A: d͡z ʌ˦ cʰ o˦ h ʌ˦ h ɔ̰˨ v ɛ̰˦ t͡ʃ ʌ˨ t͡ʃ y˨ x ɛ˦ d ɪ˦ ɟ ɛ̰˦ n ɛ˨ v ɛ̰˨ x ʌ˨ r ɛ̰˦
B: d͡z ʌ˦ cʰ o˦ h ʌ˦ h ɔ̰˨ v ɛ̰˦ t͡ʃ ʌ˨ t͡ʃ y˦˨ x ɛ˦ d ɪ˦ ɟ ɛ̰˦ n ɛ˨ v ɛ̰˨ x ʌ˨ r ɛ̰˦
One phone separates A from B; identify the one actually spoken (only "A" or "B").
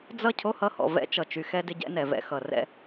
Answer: A